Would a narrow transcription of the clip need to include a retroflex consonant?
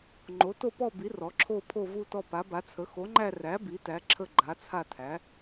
no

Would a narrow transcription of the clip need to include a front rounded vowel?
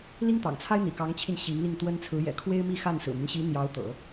yes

